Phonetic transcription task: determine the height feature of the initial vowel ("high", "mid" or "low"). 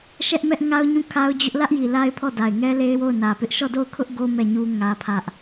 mid